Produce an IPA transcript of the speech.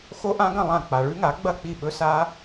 xo˦˥ʔã˦˥ɡɐ̃˥˩ lˠã˥˩ k͡pa˨ɭʉ˦˥ŋa˩˥ ɡ͡bɐ˥˩k͡pi˥˩ɓɵ˦˥sa˦˥

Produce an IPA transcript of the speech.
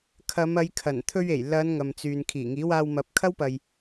kʰɐ˨˧mɐ˨˧jkʰɐ˨˩n t̪ʰɵ˧ɥe˨˩jlɐ˨˧n ŋɐ˨mt͡syː˨n kʰiː˨˩ŋiː˨˥waː˧wmɐ˨˥p̚ kʰɐ˥wpɐ˨j

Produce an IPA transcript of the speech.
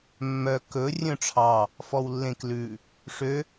mːœ kɵ rʲœ̃ʈ͡ʂʰɑ | fɔwlːẽklʉ | ʂø

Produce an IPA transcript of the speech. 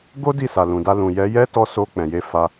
ɡo˦ di˦˨sa˨lũ˨da˧ lũ˨jɛ˨˦jɛ˦ tɔ˧ so˧ k͡pɛ̃˨je˨˦ fa˧

